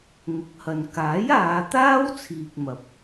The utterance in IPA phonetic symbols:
ŋ ʊ˨˥ k̚ h ɐ˨ n k aː˨˥ j aː˨˧ t̪ aː˥ w t͡sʰ iː˨ k̚ m ɐ˨ p̚

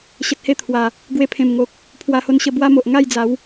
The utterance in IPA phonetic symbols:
ɕ ə˨ t̚ h e˧ t̪ʰ w a˨˩ | ɡ w e˧ pʰ ẽ˨˩ m ŋ o˨ k̚ | pʰ w a˧ h o˧ n ɕ ə˧ b w a˦ m o˨ ʔ ŋ a˥˧ j d͡z a˨˦ w

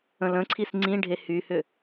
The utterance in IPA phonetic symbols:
ə̃ l ə̃ ǀʰ i s ŋ͡ǀ ĩ ɖʱ e h y h ʏ

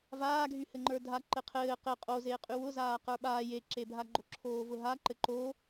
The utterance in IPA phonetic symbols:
v aː ɡʱ y h ɘ ŋ͡ǃ ə˞ dʱ a ǃ ɘ qʰ ɘː q ɘ qʼ o z eː qʼ y w ʊ z aː q ə˞ ɓ aː j e ǁ e bʱ a ɡ͡ǃ o ǁʰ oː v ʊ ɦ a ǃ ɘ ǃ o

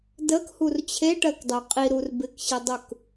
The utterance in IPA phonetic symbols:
d ə k h u r t͡ɕʰ e ʈ ɜ k dˤ ø qʼ i ɾ u r b ɪ k ɕ ɪ dˤ u k

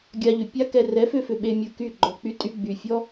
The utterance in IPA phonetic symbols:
ɡʲ a˧ ʎ ʏ˨ pʲ a˦ k ɛ˧ r ɛ˨˦ f ʏ˧ f ʏ˨ ɓ e˧ mʲ u˧ k y˦˨ ɡ͡ǃ ɔ˨ k͡p y˧ tʼ y˧ ɡ͡b y˨ fʲ ɔ˦

